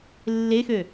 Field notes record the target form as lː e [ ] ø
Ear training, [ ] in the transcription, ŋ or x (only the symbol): x